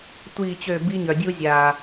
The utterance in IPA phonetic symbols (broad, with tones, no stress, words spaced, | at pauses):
tʷiː˦˨t͡ɕø˦˨ biː˦ɲœ˨dʲu˦zʲaː˨